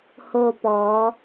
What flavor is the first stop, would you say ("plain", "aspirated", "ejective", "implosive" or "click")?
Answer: plain